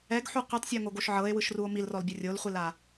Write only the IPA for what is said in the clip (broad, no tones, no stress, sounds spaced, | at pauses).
ɛ ɡ ħ u qʷ i tˤ sʲ ɔ ŋ o ɡ o ʃ ʕ ɤ e̯ w ɯ ʃ r u o̯ m i l r ɔ l bʲ o rʲ o l χʷ i l a